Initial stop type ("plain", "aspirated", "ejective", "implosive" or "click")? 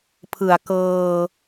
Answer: aspirated